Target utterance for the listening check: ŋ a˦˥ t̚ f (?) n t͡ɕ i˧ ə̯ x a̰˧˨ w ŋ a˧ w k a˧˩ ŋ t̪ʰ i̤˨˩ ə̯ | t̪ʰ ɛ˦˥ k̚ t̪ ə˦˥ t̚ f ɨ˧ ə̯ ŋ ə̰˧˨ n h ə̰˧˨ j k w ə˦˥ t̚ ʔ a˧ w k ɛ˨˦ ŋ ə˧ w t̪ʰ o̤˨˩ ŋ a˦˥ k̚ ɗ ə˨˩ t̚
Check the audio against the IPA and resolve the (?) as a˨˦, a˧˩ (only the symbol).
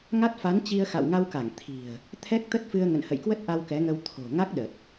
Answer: a˨˦